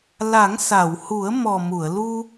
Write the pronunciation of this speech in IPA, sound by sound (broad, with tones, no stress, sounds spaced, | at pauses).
l a˨˩˦ ŋ s a˨˩˨ w h u˨˩˦ ə̯ m ɔ˨˩ m u˨˩˨ ə̯ l u˧